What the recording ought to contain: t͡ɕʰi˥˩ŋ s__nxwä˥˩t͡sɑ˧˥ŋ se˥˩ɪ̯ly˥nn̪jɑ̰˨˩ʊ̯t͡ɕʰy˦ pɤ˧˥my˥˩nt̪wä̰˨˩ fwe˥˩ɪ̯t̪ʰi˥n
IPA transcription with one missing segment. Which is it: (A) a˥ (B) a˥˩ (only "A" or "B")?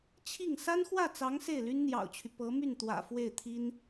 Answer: A